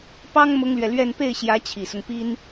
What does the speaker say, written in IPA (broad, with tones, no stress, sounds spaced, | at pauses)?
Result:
p ɑ˥ ŋ m ʊ˥ ŋ l ɥ ɛ˨ l ɥ ɛ˥˧ n p e˥˩ ɪ̯ ɕ j ä˧˥ t͡ɕʰ i˨˩ s ʊ˦ ŋ p i˥ n